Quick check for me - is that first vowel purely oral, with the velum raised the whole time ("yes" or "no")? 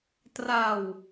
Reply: yes